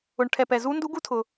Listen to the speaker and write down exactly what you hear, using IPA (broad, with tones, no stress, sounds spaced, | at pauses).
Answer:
ʊ˨ ɳ ʈʰ ɛ˨ p ɛ˨ z u˦˥ n d u˦˥ ɡ u˦˥ tʰ ʊ˨